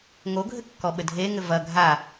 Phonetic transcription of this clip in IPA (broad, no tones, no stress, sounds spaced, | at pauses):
ŋ o ɡʱ ɘ kː ɔ ɓ ɘ dʱ e ŋ ɘ v ɐ ɡʱ a